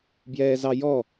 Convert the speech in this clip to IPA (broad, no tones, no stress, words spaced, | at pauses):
bjɛːzɑjɔ